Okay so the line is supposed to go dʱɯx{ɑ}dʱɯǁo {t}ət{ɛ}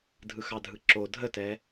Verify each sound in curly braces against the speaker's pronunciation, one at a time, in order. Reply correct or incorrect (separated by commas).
correct, incorrect, correct